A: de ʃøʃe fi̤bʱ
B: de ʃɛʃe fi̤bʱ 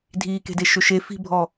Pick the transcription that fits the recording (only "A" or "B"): A